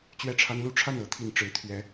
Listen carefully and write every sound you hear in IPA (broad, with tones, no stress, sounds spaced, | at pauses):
t͡ɕ ɥ ɛ˥˩ ʈ͡ʂʰ a˥ n l u˥ ʈ͡ʂʰ a˥˩ n ɤ˧˥ t̪ʰ i˨˩ n ʈ͡ʂ ɻ̩˧˥ t̪ʰ ɥ ɛ˧˥